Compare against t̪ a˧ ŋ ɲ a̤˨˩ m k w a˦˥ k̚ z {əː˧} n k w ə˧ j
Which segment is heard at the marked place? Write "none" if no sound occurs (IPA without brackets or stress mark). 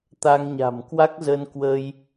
ə˧